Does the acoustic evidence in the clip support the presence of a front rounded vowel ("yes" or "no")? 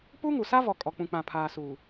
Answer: no